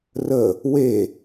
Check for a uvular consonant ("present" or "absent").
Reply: absent